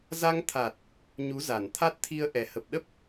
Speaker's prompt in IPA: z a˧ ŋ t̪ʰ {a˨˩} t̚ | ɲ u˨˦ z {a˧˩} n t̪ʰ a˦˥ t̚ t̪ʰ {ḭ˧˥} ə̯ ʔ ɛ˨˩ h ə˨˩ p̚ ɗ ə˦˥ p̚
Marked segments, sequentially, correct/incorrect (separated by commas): correct, correct, incorrect